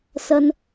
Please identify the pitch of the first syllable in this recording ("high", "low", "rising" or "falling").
low